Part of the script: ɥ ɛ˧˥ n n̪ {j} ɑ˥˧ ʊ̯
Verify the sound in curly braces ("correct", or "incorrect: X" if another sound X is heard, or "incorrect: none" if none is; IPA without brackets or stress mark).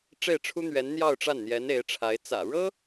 correct